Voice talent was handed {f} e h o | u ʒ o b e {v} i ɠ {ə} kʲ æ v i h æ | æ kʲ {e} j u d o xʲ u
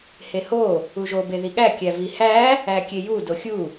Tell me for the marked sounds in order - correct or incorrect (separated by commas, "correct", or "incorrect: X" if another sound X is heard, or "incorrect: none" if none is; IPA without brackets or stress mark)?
incorrect: h, incorrect: ð, incorrect: æ, correct